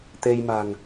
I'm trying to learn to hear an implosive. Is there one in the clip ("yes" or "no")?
no